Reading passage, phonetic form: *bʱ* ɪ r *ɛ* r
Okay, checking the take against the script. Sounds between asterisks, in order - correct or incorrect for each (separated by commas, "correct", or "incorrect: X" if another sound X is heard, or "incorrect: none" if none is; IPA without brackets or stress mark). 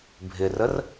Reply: correct, incorrect: ə